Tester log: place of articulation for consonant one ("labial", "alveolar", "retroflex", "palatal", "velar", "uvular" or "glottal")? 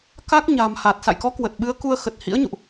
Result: velar